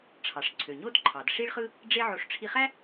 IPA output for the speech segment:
ʈ͡ʂʰ ɑ˩ ʂ ǀʰ ø˩ ɲ o˥ d ǃʰ ɑ˩ d ʂ i˥ ɭ χ ɯ˥ | ɖ͡ʐ e˥ ʕ o˧ ʂ ʈ͡ʂʰ i˧ χ æ˥

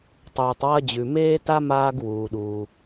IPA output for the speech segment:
tˤ uː˩ tˤ w ɐ˥ d͡ʑ ʉ˩ m eː˥ t a˥ m aː˥ ɡ w uː˩ ɗ uː˩

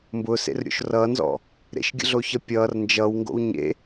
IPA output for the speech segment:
m b ʊː s ḛ r ɾʲ o̰ ʃ r ʌː n z ɔ̰ | ɾ ḛ ʃ ɡʲ ə̰ ɮ o ç ʌ pʲ ʌː r n d͡ʒ ʌ w ŋ ɡ o̰ w ɲ ḛ

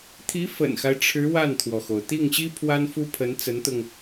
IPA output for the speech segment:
t̪ʰ i˧˥ f ə̰˨˩ n x a˦ ɪ̯ ʈ͡ʂʰ ɻ̩˧˥ w a˥˩ n t̪ʰ w ɔ˩ x o˩ ʊ̯ t̪ i˥˩ ŋ ɕ i˥ pʰ w a˥ n f u˥ pʰ ə˧˥ n t͡s ə˧˥ n t̪ ʊ˧ ŋ

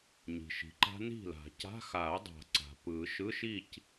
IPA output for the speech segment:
ɲ i̤˩ ʃ i̤˩ ǃ a̤˦˥ n i̤˥˨ l a̤˨˩˦ c a̤˧˥˧ x a˨˩˦ ɐ̯ dˤ a̤˨˩˦ ǀ a̤˩ p ɯ˨˩˦ ʃ ɯ˧˥˧ ʃ i˥˨ c

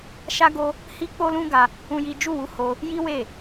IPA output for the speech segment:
ʃ a˦ ɡ o˦ | h i˦ k͡p o˦ l ũ˦ ɡ a˧ | ũ˦ j i˦ d͡ʒ u˦˨ w u˧ h o˧ | j i˦ w e˦˨

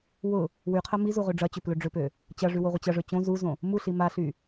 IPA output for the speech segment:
w ʊ | w y qʰ ɐ m i z u ʁ ø ɖ͡ʐ ɐ t͡ɕ ʏ p l ø ɖ͡ʐ ʏ p ø | t͡ɕ ɐ ʐ y w o ʁʷ ɪ t͡ɕ ɐ ʐ ø t͡ɕ õ z u z õ | m u ɬ i m a ɬ y

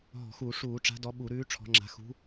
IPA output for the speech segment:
ɦ ɔ̤˧˩˧ x u˧˩˧ ʂ uː˧˩˧ ʈ͡ʂ a̤˨˦ d ɔ˨˦ ɓ u˧˩˧ ɾ ʉː˨˦ ʈ͡ʂʰ ɔ̤˨˦ ŋ͡ǁ a̤˨˦ x ṳ˨˦

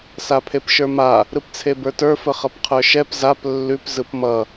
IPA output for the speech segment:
s a pʰ e p ʃ ə˞ m a | ɾ ɯ p t͡sʰ e b ə˞ t ə˞ f ə χ ʌ p qʰ ə˞ ʃ ɛ p z a p lː ʉ p z ɯ p m ʌ

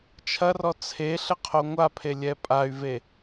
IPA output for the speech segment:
t͡ʃʰ ɐ r ɔ t͡sʰ e ɬ ɘ qʰ o ŋʷ a pʰ e lʲ ɛ pʼ a y̯ v e

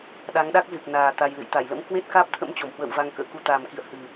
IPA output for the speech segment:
ɗ a˨˦ ŋ ɗ a˦˥ k̚ z ɨ˨˩ k̚ n aː˨˩ t̪ a˧ j l ɨ̰˧˨ j t̪ a˧˩ j l ə̰˧˥ m k w e˦˥ t̚ k aː˦˥ p̚ t̪ʰ ə̰˧˥ m t͡ɕ o˧˩ m h w ə̰ː˧˨ w v a˧ ŋ k ə̰ː˧˥ k u˧ t̪ aː˨˩ m k ḭ˧˨ ə̯ h ɨ˨˩

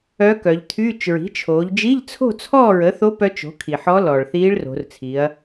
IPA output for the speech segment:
œ˧˥ k œ˩˧ ʎ t̪ʰ yː˧˥˧ t͡ʃ ɹ i̤˩˥ t͡ʃʰ oː˩˧ ʎ d͡ʒ i˧˥˧ ʎ t͡sʰ o̤˥˨ t͡sʰ ɔː˥˨ ɹ ə˩˥ θ o˧˥ p œ˧˥ t͡ʃ o̤˩˥ kʰ i˩ ħ ɔ˧˥ l ɔː˩ ɭ θ iː˧˥ ɭ r o̤˩˧ r t͡sʰ i˩˧ ɐ̯

